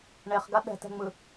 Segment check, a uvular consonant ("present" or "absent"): present